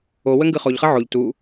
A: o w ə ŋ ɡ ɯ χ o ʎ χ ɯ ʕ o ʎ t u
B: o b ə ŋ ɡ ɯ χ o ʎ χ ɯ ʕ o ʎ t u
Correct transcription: A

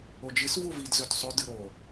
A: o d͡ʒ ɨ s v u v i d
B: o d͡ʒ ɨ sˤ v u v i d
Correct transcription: A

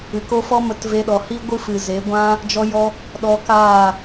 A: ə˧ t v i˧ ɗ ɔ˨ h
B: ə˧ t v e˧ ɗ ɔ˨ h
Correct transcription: B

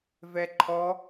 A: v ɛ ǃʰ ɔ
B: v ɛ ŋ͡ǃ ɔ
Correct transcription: A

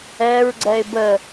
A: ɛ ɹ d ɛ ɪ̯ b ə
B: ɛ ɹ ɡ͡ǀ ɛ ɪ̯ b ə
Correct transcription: B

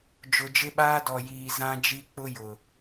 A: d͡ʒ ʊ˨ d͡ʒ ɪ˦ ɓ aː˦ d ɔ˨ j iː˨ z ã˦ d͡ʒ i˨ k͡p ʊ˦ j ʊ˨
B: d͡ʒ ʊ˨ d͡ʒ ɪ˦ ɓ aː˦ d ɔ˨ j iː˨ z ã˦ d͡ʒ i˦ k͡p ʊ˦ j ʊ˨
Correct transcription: B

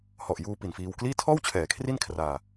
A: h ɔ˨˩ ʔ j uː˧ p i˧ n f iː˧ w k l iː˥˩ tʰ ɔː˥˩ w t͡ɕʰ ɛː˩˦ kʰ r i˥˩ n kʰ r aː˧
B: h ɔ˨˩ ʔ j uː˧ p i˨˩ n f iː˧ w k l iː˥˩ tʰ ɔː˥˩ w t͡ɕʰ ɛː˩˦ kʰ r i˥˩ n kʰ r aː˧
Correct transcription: B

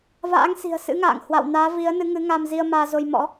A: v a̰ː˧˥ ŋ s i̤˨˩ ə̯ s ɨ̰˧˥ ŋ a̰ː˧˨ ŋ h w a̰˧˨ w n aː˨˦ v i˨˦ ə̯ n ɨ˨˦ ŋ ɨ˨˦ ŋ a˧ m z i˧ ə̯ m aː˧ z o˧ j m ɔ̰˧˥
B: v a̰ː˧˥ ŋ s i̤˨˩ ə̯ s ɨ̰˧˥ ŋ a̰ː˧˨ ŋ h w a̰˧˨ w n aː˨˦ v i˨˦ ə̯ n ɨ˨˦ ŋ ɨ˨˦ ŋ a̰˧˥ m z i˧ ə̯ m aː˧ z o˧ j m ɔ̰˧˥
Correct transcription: A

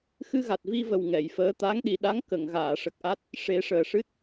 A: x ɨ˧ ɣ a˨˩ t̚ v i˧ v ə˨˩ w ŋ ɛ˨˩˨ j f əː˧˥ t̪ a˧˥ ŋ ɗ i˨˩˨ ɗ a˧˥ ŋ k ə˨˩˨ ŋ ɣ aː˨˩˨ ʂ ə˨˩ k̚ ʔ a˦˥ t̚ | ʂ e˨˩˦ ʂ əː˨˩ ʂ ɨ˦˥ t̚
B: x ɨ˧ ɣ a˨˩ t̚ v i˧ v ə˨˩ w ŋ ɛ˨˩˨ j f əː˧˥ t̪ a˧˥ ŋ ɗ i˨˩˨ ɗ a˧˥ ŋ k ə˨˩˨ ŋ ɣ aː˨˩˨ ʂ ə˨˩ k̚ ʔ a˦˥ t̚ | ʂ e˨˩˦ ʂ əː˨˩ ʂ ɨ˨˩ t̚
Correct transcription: A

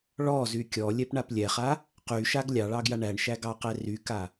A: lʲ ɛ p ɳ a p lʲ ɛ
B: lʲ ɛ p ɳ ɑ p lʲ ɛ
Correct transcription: A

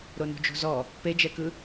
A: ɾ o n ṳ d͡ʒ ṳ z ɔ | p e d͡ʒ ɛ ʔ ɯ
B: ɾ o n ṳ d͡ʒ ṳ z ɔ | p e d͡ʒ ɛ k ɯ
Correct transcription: B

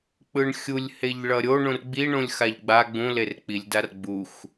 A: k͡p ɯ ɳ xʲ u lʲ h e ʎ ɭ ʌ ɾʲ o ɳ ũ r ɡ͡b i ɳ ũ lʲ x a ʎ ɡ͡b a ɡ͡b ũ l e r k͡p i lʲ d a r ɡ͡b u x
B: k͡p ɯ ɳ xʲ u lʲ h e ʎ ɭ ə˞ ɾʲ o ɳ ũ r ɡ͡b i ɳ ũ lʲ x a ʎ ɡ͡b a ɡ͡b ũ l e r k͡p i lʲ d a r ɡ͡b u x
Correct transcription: A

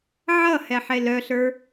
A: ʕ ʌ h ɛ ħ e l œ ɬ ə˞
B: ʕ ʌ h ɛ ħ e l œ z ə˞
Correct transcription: A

